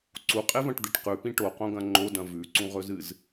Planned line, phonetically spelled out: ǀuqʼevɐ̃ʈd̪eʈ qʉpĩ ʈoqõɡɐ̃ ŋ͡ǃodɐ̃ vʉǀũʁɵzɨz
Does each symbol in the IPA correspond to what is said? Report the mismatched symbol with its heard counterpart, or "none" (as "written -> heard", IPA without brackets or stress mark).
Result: none